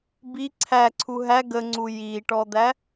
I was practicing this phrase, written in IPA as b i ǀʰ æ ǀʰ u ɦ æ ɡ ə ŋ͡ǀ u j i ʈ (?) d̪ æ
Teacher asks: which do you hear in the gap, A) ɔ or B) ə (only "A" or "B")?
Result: A